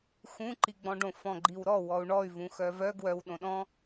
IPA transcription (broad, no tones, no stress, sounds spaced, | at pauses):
x ũ ǃ i ɡ͡b ɔ̃ ɖ õ f ɔ̃ ɡ͡ǃ i w ɾ ɔ w ɔ u̯ ɳ ɔ y̯ v ũ x œ v œ ɡ w œ w ɗ õ ɗ ɔ̃